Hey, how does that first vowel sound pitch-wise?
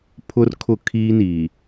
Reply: high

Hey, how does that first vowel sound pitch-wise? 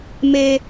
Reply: high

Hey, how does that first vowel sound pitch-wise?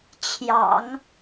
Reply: low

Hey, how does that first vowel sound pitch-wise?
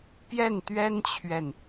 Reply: falling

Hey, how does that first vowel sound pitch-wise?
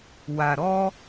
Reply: low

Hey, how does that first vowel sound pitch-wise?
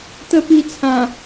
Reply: high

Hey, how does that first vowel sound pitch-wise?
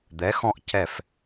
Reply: rising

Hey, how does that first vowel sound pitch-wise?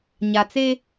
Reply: low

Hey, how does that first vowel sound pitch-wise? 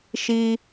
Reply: high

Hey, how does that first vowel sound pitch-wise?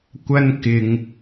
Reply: high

